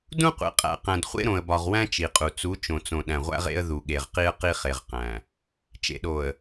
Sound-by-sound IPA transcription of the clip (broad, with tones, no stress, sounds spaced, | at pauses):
d ũ˦ qʷ ḛ˨ qʼ æ̰˨ q æ̃˨ d χʷ ḛ˦ ɾ õ˨ ə̯ b ɒ˨ ʁ w æ̃˦ t͡ʃ i˨ qʼ u˨ t͡s u˨˦ t͡ʃ õ˨ t͡s õ˨ ɗ æ̃˨ ʁʷ æ̰˦ ʁ ḛ˦ ə̯ ð u˨ ɠ e˨ ʁ q i˦ ə̯ q i˦ χ e˨ ʁ q æ̃˨ | t͡ʃ ḛ˨ ɗ o˨ ə̯